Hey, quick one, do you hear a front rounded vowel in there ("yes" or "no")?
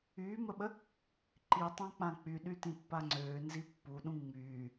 yes